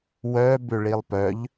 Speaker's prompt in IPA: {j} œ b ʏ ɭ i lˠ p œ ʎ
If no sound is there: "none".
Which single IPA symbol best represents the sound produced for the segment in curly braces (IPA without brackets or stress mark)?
w